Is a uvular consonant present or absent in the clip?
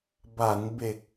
absent